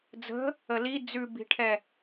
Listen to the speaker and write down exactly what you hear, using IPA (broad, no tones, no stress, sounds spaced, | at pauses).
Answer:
d͡z ə̤ | ə l i d͡z ʉ b i̤ ʈʰ ɛ